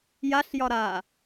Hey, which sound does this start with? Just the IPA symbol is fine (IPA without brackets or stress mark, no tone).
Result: j